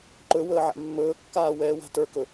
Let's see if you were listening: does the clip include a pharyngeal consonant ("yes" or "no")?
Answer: yes